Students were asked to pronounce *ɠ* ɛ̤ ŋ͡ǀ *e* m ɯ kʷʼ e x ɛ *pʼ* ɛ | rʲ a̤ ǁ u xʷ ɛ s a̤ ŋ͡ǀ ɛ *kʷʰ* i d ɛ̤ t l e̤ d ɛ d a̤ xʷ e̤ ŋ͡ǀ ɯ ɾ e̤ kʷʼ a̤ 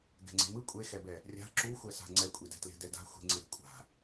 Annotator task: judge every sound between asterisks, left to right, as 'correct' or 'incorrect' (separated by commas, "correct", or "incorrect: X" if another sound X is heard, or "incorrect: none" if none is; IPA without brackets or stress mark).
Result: incorrect: ɡ, incorrect: e̤, incorrect: b, incorrect: kʷʼ